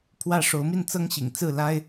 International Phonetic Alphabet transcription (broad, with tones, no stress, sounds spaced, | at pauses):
pʰ w ä˥˨ ʂ o˨˦ ʊ̯ m i˥˨ n t͡s ɤ˦ ŋ ɕ ḭ˨˩ ŋ t͡s ɹ̩˥˨ l a˦ ɪ̯